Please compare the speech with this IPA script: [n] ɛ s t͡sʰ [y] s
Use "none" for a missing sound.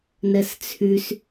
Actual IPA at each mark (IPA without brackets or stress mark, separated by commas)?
n, y